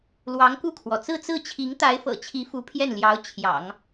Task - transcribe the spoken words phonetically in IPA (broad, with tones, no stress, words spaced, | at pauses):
lwɑ˧˥ŋku˥˩kʰwɔ˩ t͡sɹ̩˥˧t͡sɹ̩˥˩t͡ɕʰi˧˥ŋ t̪a˧˥ɪ̯fɤ̰˨˩t͡ɕʰi˧˥ fu˧˥pʰjɛ˥˩nljɑ˧˥ʊ̯ t͡ɕʰjɑ̰˨˩˦ŋ